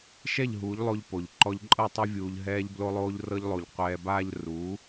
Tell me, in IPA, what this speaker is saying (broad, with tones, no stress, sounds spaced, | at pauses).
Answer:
ʃ ɛ˦˨ ʎ ɦ uː˨˦ ʎ lˠ o˧ ʎ p o˨ ʎ ǃ ɔ˧ ʎ ǃʼ ɤ˦˨ tˤ ɛ˦ vʲ uː˧ ʎ ɦ ɛː˧ ʎ b l o˧ lˠ oː˧ ʎ r ɤ˧ ʎ lˠ o˨ ʎ qʷ ɛː˧ b aː˦ ʎ r u˨˦